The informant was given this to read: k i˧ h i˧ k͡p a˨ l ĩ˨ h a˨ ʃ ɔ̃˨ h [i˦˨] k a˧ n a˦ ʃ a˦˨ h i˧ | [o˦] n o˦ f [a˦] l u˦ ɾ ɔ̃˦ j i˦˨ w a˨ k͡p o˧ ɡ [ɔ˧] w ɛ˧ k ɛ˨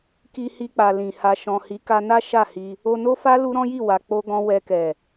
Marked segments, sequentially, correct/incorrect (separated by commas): incorrect, incorrect, correct, incorrect